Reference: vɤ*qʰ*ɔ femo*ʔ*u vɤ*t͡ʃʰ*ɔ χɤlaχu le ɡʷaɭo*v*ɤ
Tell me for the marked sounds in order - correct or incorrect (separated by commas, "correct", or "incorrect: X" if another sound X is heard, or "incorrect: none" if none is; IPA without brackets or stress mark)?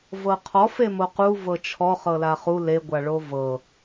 correct, incorrect: q, correct, correct